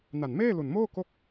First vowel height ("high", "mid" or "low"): low